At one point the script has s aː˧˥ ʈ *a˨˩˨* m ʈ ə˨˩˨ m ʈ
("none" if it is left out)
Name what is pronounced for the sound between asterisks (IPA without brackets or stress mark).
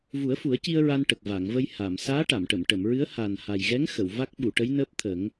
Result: a˨˩˨